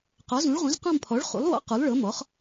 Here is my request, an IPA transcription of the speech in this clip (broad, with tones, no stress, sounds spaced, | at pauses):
q ɔ˩˥ z ũ˩˥ ɭ ʁ ũ˩˥ z q ɔ̃˦˨ m pʰ ɔ˩˥ ɭ χ ṵ˩˥ lˠ w ɔ̰˩˥ q u˩˥ lˠ ɭ ɤ˩˥ m ɔ˩˥ χ